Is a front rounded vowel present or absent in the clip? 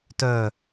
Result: present